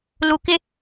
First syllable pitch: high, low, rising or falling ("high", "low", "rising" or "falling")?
low